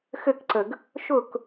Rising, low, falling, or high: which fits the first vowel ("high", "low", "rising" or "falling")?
falling